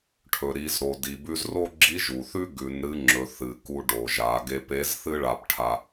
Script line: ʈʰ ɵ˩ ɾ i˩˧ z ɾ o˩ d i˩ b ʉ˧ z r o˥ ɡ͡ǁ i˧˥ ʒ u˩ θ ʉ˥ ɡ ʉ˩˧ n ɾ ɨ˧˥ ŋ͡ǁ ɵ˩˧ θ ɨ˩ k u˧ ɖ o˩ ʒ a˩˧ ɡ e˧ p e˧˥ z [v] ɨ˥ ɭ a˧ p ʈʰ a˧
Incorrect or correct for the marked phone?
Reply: incorrect: θ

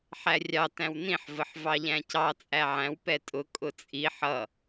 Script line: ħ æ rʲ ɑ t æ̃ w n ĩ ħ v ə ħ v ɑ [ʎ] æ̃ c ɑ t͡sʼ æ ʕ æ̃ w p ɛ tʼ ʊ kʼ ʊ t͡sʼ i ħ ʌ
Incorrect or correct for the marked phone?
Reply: correct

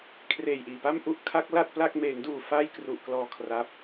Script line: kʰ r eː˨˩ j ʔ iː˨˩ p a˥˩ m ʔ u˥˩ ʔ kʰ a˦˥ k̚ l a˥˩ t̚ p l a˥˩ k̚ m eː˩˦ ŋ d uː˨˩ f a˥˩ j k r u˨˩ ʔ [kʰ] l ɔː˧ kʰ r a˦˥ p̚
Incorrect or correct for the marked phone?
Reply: incorrect: k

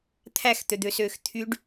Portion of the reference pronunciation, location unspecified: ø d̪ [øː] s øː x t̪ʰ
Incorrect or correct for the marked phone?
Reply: incorrect: ø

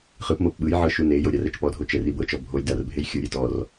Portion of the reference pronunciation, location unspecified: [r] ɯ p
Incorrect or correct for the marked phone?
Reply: incorrect: χ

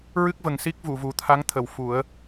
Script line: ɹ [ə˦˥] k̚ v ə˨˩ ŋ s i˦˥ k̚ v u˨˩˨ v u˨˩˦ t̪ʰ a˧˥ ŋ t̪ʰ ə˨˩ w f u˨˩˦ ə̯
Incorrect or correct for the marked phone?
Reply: incorrect: ɨ˦˥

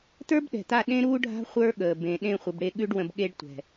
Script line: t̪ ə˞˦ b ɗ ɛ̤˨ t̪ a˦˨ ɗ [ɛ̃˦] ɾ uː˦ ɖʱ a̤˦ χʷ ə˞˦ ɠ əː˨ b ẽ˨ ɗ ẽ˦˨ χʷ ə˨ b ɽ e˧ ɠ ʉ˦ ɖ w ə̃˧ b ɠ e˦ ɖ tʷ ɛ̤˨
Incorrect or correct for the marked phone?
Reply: incorrect: ẽ˦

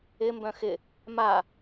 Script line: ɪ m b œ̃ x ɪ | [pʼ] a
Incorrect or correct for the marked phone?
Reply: incorrect: m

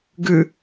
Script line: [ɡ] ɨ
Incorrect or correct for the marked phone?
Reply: correct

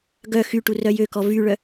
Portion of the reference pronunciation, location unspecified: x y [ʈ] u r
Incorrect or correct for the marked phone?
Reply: correct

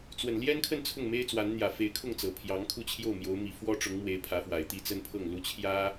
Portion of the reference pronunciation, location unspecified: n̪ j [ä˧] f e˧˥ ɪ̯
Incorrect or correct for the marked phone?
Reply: incorrect: ä˨˩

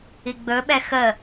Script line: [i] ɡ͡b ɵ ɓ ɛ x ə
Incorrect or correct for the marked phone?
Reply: correct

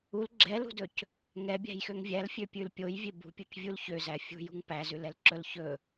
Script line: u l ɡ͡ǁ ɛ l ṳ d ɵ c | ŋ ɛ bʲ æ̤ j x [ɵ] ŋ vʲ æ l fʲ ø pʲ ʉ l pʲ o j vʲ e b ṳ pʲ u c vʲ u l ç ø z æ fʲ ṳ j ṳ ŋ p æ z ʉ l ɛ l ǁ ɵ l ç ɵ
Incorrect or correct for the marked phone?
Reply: incorrect: ø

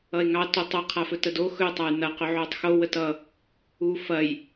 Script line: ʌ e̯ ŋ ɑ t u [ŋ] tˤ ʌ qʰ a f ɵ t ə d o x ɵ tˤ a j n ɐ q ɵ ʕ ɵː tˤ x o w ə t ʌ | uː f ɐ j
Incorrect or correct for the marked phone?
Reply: incorrect: none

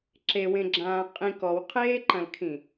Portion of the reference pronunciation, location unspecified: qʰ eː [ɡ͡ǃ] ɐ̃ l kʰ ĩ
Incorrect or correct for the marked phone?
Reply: incorrect: ǃ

